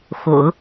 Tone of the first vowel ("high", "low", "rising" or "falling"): low